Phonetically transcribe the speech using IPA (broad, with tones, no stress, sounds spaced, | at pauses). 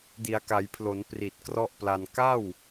d i˩˦ a̯ k a˩˦ j pʰ l o˩˦ n p r i˨˩ t̚ k r ɔ˥˩ ʔ p l a˧ n k a˥˩ w